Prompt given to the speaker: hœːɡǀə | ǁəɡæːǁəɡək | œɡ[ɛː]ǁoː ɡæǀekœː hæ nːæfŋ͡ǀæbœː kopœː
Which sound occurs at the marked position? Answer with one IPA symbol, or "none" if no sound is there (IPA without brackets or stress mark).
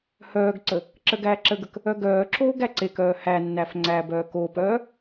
œː